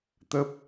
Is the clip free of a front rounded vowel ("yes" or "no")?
yes